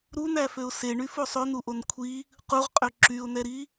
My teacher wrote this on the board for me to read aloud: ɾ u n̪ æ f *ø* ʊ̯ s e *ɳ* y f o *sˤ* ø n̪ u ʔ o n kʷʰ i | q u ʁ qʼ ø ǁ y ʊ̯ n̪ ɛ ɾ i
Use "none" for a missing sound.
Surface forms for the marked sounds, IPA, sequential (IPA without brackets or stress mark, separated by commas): ø, ɳ, sˤ